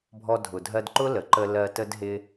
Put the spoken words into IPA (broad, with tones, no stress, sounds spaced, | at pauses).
bʱ ɔ˧ dʱ ʊ˨ dʱ ɜ˧ d ǃ ʊ˦ l ə˨ ǃ ə˧ l ɜ˧ t ə˦ d ɦ ɪ˦